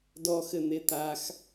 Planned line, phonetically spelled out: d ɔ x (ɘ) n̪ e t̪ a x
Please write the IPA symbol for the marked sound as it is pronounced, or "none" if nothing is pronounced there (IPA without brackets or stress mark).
ɘ